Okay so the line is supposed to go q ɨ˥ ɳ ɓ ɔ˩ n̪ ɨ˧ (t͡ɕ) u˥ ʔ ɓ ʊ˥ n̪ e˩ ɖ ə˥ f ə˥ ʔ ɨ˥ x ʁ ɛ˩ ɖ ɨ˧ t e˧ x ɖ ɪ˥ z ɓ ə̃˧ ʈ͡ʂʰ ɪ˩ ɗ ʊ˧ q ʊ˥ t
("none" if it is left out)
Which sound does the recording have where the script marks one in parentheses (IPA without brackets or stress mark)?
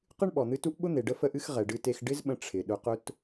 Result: t